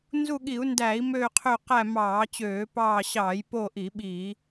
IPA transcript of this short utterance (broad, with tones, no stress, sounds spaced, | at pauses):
n z u˦˨ ɠ i˧˩˧ u̯ n d æ˧˩˧ i̯ m øː˦˨ qʰ ø˦˨ q æ˦˨ m ɑː˧˩˧ t͡ɕ øː˧˩˧ p ɑː˦˨ ɕ ɑː˧˩˧ j p o˦˨ ʔ i˧˩˧ ɓ i˧˩˧